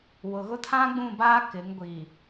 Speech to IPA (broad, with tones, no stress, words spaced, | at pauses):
wʊ˨ɣʊ˦ tʰã˦ɡ͡bũ˦˨baː˦ kɪ˨˦ŋ ɡʷi˨